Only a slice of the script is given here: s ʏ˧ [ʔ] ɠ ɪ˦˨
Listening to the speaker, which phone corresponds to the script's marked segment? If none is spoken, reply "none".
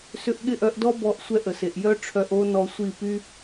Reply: ʔ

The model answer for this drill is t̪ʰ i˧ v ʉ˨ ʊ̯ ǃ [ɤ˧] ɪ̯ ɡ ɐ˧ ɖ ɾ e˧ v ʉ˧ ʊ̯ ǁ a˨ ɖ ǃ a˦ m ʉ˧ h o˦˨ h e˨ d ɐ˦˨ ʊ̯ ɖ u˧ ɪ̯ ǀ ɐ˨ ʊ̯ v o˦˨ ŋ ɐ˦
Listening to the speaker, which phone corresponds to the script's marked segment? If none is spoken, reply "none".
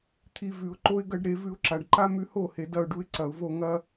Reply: o˧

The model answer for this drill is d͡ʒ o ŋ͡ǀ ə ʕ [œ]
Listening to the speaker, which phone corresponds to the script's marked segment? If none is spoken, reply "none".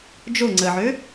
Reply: ø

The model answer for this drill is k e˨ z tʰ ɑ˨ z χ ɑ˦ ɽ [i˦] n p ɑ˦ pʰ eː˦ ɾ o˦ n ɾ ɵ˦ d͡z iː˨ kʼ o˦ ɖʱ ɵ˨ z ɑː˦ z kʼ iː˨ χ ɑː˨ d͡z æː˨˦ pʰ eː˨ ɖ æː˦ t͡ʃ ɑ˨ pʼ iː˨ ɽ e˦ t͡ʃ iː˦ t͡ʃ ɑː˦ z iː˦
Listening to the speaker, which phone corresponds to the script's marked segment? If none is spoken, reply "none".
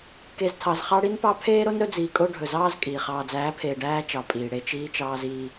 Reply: i˦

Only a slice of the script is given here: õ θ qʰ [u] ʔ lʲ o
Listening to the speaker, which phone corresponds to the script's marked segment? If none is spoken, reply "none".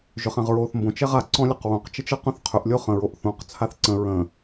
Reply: ʏ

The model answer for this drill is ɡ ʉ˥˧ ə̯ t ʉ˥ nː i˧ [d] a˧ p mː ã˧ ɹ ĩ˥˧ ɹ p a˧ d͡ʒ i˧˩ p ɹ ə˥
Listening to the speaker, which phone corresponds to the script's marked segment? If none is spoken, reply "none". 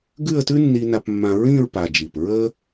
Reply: n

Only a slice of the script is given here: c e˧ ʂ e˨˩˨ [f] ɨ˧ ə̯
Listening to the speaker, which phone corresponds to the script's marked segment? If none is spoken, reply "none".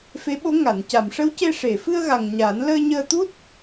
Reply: f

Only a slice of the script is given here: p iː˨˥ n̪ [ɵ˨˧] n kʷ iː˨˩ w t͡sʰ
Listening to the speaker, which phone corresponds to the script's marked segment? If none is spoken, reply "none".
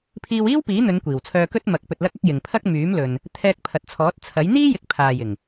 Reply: ɵ˨˧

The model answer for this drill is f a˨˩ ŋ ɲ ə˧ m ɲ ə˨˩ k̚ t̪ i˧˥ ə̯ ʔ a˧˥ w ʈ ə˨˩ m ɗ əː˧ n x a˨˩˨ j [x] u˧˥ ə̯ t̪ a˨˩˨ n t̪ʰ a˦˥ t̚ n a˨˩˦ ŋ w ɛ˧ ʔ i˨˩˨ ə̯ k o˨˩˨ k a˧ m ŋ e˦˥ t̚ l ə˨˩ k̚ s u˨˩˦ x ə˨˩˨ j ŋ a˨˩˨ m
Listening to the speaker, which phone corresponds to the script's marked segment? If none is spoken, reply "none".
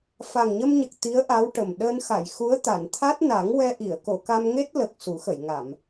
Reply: x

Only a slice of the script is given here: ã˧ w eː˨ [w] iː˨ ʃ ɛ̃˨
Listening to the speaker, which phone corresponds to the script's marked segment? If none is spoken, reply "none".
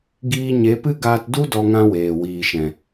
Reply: w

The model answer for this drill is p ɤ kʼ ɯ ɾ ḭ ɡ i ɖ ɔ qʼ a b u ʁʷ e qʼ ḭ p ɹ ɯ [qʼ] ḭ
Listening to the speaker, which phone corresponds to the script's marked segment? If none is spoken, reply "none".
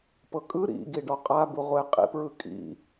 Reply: kʼ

